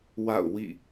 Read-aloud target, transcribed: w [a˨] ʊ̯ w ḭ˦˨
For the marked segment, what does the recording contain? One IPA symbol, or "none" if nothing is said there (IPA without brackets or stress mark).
a̰˦˨